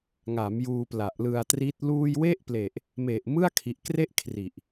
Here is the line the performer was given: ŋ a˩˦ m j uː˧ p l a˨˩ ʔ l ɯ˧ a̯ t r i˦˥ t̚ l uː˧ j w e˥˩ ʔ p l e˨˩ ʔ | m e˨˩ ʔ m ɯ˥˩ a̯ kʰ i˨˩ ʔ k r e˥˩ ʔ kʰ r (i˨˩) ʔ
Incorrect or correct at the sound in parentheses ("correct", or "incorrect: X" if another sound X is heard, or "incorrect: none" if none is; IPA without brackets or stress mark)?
correct